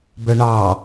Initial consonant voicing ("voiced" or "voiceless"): voiced